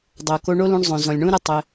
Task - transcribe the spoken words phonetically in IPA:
dˤ o˨ k o˧ ɳ o˦ l ũ˧ ɳ zˤ õ˨ z ɔ̃˨ lʲ ɳ ũ˦ ɾ ɘ˦ tˤ ɘ˧

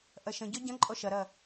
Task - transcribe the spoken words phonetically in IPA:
ʔ ɐ ʃ ə̃ ɟ ɔ ɟ ɐ̃ ǃʼ ɔ ʃ ɐ ɾ ɐ

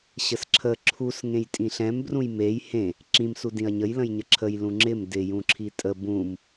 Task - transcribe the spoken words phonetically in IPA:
ɕ ə s ǁʰ ə ǁʰ u s ŋ ẽ j tʼ ĩ ɬ ɛ̃ m b r ũ j m e j h ẽ | ǁ ĩ m s u d ĩ ɐ̯ ɲ ə j l ə̃ j ɲ ə ǁʰ ə j l ũ ŋ͡ǁ ɪ m d ɪ j ũ ǁʰ i tʼ ə b ũ m

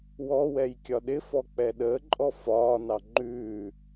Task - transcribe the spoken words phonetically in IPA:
w ɔ w ɛ j kʲ ɒ ɗ ɪ f ɔ k͡p ɛ ɗ əː ǃʼ ɔ f ɒː n ɑ ŋ͡ǃ ʉː

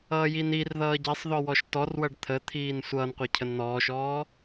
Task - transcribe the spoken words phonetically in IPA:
ʌː j i n i r ð ʌː ɟ ɛ sˤ ð ɔ w ɔ ʃ t ɔ r w ʌ ɖ t̪ʰ ə t̪ʰ iː n sʷ ʌː n qʷ e cʰ ə n n̪ ɔː ʃ ɔː

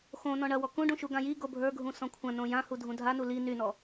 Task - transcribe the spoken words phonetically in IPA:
x õ n ɔ̃ ɳ ɐ w ɔ k ũ ɖ ũ ʃ u ɡ ã j i ɡ o bʱ ə˞ ɡʱ ũ s ɔ̃ kʷʰ ɐ̃ n õ j ã h u dʱ ũ dʱ a n u l i n y n ɔ

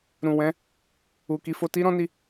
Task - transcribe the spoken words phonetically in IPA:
ɾ ũ˨ w ɛ̃˨˦ | u˨ k i˨˦ f o˧ t i˦ ɾ ɔ̃˦ n i˦˨

